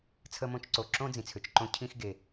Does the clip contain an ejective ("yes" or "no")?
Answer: no